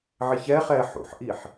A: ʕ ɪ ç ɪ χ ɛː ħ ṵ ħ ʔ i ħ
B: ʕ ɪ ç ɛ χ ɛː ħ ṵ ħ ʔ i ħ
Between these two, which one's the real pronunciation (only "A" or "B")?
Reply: B